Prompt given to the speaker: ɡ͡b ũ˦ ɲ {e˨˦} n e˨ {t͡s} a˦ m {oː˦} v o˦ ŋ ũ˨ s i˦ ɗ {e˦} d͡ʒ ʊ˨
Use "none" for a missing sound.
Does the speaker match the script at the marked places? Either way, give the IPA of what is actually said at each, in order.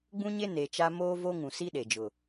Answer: e˦, t͡ʃ, oː˦, e˨

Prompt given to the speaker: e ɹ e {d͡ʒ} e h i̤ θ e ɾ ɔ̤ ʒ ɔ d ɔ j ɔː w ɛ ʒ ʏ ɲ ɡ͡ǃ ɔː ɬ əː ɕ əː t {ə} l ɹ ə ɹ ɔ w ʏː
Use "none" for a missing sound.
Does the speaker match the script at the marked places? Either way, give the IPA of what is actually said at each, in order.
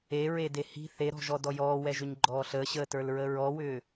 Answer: d, ə˞

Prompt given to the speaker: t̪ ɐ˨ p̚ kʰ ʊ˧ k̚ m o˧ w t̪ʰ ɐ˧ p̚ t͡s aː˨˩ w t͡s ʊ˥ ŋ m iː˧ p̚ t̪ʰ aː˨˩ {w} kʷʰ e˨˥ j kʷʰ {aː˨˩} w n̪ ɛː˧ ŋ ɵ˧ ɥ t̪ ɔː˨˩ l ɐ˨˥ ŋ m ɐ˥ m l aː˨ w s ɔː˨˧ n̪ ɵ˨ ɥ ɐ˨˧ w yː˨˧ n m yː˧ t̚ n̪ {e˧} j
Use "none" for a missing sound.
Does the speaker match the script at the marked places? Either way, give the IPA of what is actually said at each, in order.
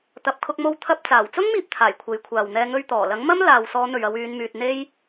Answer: j, aː˨, e˥

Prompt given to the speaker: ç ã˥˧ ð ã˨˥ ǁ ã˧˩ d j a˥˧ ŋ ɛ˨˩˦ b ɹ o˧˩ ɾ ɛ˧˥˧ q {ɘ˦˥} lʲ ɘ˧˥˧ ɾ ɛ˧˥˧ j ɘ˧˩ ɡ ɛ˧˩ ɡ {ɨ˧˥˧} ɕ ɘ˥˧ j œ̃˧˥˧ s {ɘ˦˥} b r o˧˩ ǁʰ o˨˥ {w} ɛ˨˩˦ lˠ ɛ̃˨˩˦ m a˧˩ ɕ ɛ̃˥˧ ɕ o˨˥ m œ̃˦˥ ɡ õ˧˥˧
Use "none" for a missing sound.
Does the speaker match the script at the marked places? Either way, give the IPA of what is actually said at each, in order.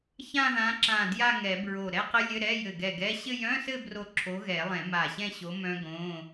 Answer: ɘ˦˥, ɛ˧˥˧, ɘ˥˧, ɣ

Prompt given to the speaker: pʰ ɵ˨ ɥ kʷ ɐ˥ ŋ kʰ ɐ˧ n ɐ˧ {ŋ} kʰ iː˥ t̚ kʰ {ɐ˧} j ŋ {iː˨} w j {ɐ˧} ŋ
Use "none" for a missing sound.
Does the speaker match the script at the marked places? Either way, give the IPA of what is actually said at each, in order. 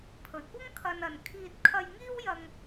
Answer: n, ɐ˧, iː˥, ɐ˧

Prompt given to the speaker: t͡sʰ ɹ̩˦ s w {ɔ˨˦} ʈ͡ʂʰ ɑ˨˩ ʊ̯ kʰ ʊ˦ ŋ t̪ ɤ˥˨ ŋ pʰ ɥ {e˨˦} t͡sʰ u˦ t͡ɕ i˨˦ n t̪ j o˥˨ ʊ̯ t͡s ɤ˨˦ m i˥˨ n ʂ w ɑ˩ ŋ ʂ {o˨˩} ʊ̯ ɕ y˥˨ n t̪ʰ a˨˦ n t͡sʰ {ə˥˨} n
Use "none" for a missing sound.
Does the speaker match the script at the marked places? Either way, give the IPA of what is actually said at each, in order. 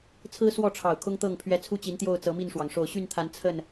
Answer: ɔ˥˨, ɛ˨˦, o˨˩, ə˥˨

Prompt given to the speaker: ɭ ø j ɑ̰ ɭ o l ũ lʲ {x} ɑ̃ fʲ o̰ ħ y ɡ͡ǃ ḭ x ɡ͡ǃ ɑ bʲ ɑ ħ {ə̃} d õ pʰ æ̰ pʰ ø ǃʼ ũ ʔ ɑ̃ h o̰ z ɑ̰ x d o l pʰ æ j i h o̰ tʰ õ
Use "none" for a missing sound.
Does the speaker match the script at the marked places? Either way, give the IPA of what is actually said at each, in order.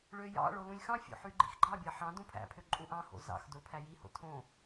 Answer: x, ɑ̃

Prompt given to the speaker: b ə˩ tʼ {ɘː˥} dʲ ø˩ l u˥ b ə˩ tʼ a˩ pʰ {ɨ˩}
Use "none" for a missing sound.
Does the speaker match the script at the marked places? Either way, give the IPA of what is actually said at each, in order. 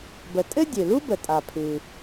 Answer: ɘ˥, ɨ˩

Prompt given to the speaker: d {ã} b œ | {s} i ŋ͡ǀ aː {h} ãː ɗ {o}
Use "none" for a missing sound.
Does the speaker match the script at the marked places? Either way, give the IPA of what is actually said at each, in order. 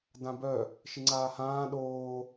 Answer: ã, ʃ, h, oː

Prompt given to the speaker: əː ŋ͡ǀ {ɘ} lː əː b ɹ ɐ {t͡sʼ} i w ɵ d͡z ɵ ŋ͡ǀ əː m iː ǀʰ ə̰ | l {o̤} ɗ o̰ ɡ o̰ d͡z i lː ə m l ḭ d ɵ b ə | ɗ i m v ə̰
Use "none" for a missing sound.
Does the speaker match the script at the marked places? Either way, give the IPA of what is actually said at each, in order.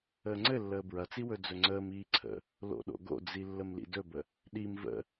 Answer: ɘ, t͡s, o̰

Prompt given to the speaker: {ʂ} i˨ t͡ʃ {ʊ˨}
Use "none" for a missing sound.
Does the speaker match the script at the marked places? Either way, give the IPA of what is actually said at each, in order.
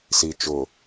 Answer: s, ʊ˨

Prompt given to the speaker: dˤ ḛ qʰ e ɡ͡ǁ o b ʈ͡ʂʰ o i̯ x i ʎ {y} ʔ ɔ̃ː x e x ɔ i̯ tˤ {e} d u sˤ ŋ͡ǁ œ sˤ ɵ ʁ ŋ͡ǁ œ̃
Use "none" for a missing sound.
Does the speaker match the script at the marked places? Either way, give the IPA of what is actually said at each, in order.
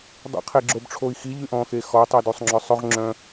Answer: y, i

